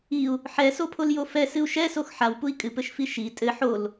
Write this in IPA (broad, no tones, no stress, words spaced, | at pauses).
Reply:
iu̯ | ħɛsopʰoljo fɛsɨu̯ ʃɛsox ħawpui̯ kʼɨpɘʃfi ʃi tʼɘ ħol